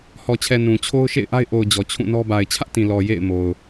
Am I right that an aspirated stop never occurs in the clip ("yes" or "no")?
no